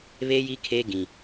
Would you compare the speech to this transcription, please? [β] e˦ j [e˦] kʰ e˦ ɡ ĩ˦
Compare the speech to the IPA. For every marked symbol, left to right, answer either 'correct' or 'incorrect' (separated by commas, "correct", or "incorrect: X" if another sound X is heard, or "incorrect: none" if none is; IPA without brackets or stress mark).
correct, incorrect: i˦